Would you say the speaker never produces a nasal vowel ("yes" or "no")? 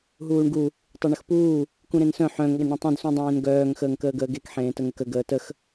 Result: no